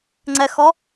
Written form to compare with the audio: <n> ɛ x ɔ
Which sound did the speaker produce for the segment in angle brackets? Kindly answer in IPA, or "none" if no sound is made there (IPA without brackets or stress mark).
ŋ͡ǀ